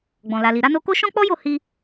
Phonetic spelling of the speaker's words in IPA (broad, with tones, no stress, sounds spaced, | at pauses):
ɡ͡b ɔ̃˨ l a˨ l i˨ ɾ a˧ n o˧ k o˦ ʃ ɔ̃˦ k͡p ɔ˦ j o˦˨ h i˧